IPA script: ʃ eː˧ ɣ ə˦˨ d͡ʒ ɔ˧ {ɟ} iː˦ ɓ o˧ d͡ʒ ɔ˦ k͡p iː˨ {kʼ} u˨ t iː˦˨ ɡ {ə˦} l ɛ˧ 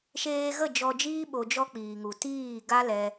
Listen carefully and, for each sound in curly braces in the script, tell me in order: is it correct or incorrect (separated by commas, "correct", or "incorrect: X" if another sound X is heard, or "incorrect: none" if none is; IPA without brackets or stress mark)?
incorrect: d͡ʒ, incorrect: ŋ, incorrect: a˦